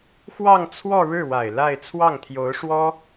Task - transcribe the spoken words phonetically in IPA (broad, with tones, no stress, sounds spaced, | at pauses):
x w ɑ˥˧ ŋ t͡sʰ w ɔ˥˧ ɻ ɻ̩˥˩ w a˨˩ ɪ̯ l a˥˧ ɪ̯ t͡sʰ w ɑ˥˩ ŋ t̪ʰ j o˧˥ ʊ̯ ʂ w ɔ˥